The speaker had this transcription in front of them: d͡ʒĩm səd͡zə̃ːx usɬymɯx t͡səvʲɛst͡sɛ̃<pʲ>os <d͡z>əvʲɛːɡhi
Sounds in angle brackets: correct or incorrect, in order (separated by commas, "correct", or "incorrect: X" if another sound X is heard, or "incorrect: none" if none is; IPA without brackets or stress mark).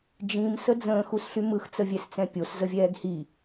correct, incorrect: z